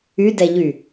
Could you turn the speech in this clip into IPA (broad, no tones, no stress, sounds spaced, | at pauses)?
y d ɛ ʎ y